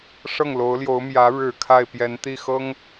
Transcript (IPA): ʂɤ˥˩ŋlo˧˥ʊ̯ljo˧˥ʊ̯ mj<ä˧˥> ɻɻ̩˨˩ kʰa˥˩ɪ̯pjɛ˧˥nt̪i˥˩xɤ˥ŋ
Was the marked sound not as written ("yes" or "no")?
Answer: no